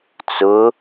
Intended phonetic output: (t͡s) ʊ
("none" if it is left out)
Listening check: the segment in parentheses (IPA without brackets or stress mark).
t͡s